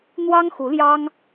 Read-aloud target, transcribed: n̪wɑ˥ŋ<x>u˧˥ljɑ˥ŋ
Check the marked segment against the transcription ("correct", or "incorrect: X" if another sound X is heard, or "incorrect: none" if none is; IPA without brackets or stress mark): correct